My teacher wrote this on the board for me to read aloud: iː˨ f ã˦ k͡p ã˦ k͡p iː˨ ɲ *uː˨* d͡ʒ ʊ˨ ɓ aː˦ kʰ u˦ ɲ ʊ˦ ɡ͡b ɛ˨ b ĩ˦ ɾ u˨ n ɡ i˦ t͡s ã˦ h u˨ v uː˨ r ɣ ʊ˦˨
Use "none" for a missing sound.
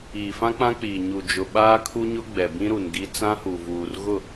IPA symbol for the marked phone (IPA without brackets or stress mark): u˨